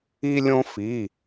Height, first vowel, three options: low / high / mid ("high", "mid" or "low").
high